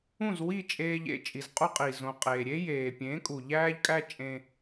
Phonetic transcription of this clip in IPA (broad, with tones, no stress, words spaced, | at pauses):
ũ˥˩zwi˥˩t͡ʃʼeː˧ʎḛ˧ t͡ʃʼi˩zqʼu˧ qʼi˩ zõ˩qʼeː˩ɾʲe˥jeː˩ pʲẽ˩˥kʼu˩ ʎæː˥ʎkʼæ˥t͡ʃʼẽ˧